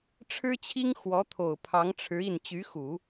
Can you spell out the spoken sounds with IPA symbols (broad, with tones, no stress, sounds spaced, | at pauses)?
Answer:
ʈ͡ʂʰ ɻ̩˥ t͡ɕʰ i˥ ŋ x w ɔ˧˥ t̪ʰ o˨˩ ʊ̯ pʰ ɑ˧˥ ŋ ʈ͡ʂʰ ɻ̩˧˥ i˥˩ n t͡ɕ y˧˥ x u˨˩˦